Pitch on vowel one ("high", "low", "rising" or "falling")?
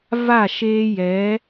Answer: falling